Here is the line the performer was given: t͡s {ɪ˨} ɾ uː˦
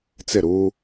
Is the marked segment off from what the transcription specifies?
yes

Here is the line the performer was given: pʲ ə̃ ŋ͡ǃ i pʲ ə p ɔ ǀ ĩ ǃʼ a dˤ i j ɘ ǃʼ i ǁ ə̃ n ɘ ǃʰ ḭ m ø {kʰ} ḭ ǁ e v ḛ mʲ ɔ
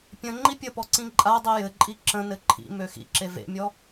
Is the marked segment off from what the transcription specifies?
yes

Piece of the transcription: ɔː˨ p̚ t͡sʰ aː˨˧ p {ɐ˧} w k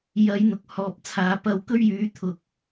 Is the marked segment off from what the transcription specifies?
no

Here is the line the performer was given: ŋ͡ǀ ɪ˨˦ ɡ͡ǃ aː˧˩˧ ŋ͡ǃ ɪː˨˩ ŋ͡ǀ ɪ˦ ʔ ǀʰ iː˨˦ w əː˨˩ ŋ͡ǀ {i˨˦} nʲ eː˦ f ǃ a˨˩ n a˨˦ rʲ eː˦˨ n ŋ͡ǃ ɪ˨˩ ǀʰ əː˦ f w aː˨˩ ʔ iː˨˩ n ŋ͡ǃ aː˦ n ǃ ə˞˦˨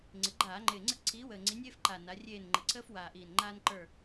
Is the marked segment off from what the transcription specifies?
no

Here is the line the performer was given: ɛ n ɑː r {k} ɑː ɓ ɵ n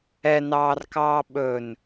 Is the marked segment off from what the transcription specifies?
no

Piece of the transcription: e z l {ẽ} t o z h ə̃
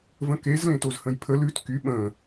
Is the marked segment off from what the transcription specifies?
no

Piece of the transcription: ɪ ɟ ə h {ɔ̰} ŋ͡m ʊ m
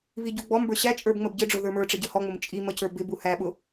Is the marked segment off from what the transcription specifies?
yes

